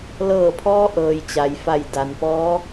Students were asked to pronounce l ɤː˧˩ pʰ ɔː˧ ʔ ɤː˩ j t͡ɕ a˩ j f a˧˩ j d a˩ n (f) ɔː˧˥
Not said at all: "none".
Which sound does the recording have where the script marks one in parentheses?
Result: p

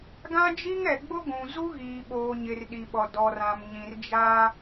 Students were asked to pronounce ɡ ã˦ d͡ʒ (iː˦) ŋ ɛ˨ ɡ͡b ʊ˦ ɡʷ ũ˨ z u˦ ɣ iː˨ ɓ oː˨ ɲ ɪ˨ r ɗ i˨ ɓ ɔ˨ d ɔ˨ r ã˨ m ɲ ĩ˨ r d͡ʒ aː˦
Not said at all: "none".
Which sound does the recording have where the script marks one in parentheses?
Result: i˦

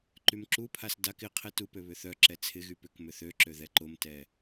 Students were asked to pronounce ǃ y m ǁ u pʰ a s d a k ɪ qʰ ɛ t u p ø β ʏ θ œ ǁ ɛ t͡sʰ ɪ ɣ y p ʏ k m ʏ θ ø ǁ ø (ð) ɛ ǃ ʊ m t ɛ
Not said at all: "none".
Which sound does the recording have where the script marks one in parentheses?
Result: ð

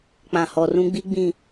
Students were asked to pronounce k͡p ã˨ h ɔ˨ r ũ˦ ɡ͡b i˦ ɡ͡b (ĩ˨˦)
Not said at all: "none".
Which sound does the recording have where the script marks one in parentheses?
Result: ĩ˨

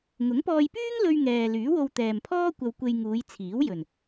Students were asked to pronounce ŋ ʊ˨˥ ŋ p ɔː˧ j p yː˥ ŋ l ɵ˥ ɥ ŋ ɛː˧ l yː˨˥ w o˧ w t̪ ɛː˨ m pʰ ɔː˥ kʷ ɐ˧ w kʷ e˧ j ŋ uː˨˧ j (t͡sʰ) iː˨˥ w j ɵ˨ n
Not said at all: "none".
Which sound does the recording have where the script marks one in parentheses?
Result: t͡sʰ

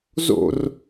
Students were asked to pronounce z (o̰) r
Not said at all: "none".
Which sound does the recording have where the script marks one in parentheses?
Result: o̰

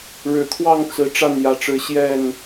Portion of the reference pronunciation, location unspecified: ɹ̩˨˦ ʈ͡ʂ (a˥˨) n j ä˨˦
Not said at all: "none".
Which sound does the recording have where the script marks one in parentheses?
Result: a˥˨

